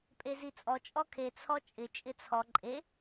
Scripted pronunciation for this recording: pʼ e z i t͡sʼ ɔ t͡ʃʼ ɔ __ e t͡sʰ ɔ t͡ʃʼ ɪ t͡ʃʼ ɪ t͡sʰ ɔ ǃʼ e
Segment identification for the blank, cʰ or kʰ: kʰ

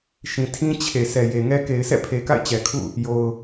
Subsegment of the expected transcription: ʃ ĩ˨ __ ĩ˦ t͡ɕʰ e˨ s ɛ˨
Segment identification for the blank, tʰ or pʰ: tʰ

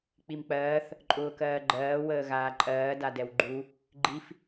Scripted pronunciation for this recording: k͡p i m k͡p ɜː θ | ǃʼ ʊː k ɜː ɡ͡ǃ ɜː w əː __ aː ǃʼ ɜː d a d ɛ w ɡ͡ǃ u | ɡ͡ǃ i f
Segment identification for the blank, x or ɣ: ɣ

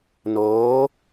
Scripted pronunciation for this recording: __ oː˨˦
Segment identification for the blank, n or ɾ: n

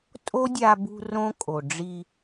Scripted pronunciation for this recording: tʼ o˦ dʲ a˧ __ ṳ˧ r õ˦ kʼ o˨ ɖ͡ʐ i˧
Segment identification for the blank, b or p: b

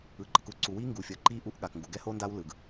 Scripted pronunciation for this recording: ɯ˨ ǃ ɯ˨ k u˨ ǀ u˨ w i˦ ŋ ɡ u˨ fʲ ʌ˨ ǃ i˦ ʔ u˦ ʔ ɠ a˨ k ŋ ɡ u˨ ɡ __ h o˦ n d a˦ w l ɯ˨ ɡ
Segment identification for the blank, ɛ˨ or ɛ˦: ɛ˦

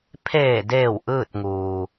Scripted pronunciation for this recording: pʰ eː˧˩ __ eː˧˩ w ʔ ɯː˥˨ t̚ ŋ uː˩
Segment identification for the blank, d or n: d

